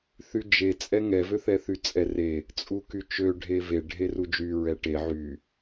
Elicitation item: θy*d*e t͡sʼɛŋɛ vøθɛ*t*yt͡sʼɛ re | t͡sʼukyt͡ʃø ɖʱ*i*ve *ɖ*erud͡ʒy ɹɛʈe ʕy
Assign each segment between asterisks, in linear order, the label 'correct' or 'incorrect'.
incorrect: d͡ʒ, incorrect: θ, incorrect: e, incorrect: ɖʱ

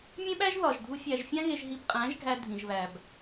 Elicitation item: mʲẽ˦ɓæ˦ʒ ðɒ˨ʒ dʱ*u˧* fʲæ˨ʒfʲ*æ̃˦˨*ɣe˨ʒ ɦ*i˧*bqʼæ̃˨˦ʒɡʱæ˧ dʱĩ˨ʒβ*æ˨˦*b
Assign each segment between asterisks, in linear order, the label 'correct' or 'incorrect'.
correct, incorrect: æ̃˧, correct, incorrect: æ˨

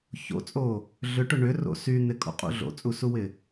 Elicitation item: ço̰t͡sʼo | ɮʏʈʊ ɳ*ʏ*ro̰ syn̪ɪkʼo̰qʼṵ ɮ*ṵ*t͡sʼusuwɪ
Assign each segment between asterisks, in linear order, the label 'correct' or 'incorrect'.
correct, incorrect: o̰

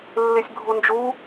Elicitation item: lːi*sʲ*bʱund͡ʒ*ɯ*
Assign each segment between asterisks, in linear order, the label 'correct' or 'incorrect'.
correct, incorrect: u

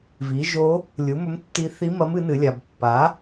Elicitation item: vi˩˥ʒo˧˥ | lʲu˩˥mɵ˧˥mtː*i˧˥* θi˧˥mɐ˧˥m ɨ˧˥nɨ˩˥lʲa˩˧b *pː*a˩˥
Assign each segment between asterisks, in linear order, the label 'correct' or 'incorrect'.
correct, correct

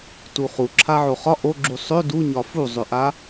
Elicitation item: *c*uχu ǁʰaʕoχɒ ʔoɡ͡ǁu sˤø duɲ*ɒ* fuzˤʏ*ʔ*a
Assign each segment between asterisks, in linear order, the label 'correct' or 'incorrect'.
incorrect: t, correct, correct

